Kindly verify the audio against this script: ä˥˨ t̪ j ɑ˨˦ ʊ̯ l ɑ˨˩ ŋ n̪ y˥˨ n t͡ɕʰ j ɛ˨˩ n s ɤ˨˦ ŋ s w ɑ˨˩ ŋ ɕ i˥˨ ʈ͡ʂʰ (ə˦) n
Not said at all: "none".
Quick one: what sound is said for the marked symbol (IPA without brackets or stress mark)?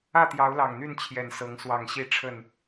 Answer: ə˥˨